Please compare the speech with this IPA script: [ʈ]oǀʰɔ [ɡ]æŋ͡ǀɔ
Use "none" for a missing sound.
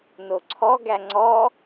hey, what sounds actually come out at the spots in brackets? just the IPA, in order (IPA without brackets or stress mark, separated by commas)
n, ɡ